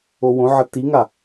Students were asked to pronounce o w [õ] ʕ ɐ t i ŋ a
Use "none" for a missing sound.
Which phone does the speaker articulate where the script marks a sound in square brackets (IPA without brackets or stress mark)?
õ